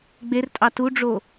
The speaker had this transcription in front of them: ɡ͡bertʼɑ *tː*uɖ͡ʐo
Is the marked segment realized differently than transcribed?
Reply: yes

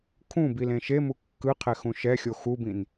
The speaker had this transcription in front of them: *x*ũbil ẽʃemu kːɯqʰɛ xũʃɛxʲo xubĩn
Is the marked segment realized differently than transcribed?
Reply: yes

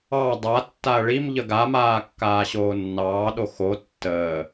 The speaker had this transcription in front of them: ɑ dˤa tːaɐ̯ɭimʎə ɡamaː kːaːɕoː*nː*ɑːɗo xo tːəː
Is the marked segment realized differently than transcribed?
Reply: no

